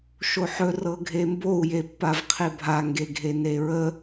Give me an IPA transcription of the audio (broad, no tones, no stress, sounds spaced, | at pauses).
ʃ o ħ ɵ r ɤ ɡʱ e m b o u̯ j e pː a v qʰ e bʱ a ŋ ɡ e ɡʱ e n e ɹ ə